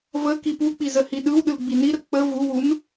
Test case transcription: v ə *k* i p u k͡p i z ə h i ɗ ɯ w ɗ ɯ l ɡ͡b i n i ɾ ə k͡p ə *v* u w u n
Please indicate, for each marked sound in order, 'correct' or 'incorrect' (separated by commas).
correct, correct